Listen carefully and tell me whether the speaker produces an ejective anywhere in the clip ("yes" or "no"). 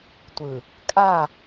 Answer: yes